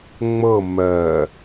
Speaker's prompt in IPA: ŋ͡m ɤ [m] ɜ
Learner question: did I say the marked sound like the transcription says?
yes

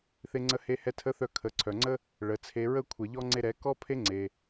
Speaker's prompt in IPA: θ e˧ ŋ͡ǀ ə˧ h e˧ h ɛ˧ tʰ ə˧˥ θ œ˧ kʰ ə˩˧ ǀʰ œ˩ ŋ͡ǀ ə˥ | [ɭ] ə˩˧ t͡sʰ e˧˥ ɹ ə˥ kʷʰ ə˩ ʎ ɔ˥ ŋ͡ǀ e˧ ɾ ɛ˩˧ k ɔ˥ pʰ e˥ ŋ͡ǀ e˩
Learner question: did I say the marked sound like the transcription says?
yes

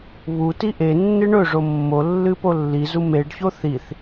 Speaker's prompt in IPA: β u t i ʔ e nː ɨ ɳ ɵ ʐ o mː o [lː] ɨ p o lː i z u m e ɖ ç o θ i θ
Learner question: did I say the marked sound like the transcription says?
yes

